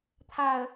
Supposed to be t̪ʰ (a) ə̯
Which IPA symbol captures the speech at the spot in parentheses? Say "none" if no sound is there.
a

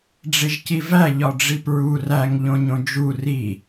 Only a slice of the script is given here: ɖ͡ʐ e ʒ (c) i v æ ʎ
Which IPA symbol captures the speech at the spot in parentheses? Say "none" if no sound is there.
c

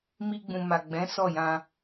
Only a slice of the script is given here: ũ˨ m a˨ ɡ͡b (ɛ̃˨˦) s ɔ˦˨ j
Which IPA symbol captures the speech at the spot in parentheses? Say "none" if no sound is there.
ɛ̃˨˦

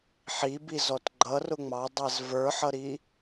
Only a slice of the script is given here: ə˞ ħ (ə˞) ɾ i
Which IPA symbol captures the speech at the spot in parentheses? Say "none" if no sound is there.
ʌ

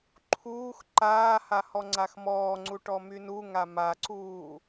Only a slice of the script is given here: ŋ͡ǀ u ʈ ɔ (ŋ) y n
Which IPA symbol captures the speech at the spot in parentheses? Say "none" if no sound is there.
m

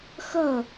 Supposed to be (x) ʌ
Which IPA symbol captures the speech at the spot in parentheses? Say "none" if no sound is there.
x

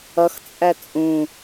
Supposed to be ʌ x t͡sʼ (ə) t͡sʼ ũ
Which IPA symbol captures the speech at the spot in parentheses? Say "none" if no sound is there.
æ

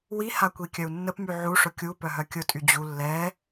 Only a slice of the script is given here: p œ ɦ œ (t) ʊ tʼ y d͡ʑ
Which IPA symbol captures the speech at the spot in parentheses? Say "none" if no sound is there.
kʲ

